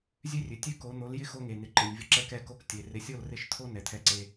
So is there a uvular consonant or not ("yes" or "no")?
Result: no